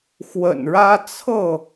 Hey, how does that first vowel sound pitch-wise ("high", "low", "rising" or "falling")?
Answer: low